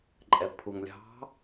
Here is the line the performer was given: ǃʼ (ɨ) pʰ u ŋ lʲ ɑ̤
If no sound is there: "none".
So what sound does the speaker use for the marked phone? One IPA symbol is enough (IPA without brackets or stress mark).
ɛ